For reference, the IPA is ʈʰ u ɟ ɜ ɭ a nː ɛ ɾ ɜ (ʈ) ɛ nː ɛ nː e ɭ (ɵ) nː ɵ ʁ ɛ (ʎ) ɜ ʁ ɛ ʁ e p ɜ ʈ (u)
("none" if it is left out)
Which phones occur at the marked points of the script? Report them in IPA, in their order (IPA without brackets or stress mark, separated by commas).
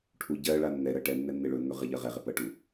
ʈ, ɵ, ʎ, u